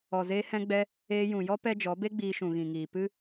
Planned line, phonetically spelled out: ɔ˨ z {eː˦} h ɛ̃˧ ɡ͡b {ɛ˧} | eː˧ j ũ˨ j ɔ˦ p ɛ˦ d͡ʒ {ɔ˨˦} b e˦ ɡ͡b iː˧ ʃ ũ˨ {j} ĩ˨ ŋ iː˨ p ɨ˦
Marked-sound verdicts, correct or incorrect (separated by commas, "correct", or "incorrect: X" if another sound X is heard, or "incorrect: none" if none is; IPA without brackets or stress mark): incorrect: eː˧, correct, correct, incorrect: ɣ